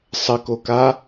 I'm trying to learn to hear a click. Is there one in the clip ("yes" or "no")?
no